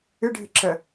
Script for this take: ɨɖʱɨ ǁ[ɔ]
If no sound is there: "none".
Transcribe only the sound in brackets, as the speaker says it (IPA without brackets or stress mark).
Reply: ə